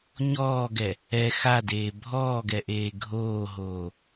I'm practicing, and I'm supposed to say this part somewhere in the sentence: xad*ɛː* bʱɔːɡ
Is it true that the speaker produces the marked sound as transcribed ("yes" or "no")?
no